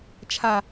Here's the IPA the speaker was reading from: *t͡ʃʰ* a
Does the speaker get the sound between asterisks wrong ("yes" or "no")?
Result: no